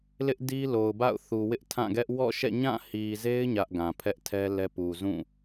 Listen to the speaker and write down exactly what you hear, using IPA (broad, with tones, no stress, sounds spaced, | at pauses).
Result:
l ɪ˦ ʔ d i˦ l o˨ ʊ̯ b a̰˦˨ ʊ̯ θ u˨ w ɪ˦ ʔ tʰ ã˦˨ ɡ ɛ˦ ʔ w ɔ̰˦˨ ʃ ɛ̰˦˨ ɲ ã˦˨ h i˨ z e˦ ɪ̯ ɲ ä˦ ʔ ɡ ã˨ pʰ ɛ˦ ʔ tʰ ɛ˦ l ɛ˦ p u˨ z ũ˦˨